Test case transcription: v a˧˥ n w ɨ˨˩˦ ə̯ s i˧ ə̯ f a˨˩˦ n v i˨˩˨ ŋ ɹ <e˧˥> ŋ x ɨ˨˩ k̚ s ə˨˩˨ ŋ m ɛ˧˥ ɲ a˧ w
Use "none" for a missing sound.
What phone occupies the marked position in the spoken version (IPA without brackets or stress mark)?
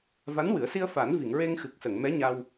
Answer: e˧